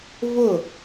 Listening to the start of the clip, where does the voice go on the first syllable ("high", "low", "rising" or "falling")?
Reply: falling